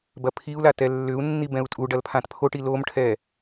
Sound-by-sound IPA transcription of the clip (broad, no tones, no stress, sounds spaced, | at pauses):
b ɐ pʰ i u̯ l a t ɛ lː ʏ u̯ nː i b ɛ̃ u̯ tʼ u ɖ ɐ l pʰ ã t pʰ o ʈ i l o m ʈʰ ɛ